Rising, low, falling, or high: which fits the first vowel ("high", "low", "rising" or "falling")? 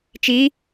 rising